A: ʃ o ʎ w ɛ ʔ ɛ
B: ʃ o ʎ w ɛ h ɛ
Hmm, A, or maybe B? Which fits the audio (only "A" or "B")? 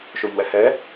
B